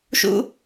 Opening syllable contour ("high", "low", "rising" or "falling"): high